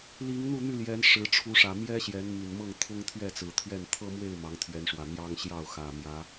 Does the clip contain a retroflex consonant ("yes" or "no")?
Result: yes